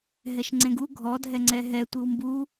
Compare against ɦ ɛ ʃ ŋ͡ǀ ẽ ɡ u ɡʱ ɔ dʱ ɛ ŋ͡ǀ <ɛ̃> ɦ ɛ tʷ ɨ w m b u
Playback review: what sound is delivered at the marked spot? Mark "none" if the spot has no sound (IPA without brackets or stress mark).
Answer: ɛ